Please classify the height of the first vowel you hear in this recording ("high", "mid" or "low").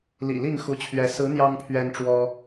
high